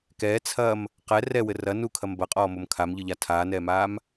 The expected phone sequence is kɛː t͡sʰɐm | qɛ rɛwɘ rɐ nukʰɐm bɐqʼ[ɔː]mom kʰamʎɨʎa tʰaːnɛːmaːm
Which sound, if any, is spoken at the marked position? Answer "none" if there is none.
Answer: ɔː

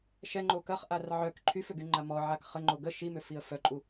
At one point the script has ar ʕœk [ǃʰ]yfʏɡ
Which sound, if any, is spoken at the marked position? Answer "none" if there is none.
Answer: ǃʰ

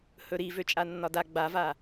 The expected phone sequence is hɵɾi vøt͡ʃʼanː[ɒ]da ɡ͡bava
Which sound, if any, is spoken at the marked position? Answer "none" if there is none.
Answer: ɒ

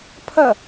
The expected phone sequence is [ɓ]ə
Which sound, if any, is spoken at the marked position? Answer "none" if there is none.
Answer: pʰ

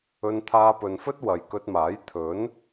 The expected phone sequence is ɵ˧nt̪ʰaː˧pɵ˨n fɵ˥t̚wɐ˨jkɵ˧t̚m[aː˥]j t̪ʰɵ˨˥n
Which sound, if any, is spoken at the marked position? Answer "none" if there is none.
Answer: aː˨˥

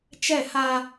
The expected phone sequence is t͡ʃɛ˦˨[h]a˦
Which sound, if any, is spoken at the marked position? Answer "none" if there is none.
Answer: h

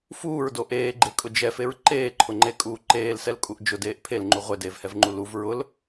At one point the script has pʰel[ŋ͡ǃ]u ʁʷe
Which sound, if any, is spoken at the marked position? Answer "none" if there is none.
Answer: ŋ͡ǃ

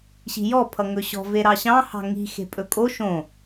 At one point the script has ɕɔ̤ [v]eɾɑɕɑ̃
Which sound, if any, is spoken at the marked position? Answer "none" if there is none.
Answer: v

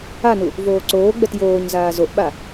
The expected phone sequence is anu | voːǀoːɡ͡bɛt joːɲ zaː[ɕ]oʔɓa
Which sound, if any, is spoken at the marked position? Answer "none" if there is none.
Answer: z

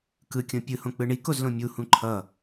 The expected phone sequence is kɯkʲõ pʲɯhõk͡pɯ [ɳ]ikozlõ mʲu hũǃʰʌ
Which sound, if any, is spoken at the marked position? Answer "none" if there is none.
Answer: ɳ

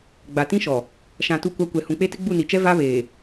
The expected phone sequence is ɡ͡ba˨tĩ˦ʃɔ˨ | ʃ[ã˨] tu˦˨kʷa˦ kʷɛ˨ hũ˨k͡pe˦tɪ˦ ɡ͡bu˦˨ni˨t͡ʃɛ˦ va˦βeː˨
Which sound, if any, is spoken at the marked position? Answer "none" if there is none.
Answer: ã˨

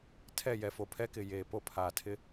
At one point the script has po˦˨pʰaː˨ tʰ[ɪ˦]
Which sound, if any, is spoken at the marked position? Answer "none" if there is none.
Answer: ɪ˦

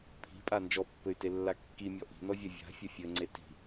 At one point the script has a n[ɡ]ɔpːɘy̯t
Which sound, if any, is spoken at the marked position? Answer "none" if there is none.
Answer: d͡ʒ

